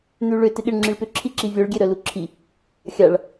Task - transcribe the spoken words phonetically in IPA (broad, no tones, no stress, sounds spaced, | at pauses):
n̪ y ɭ ʏ t ɪ ɠ ɪ ɳ ŋ͡ǁ i ɭ p ʏ ǁʰ i ǁ i vʲ œ ɭ ɡʲ e ɾ œ l u ǁʰ i | xʲ a ɭ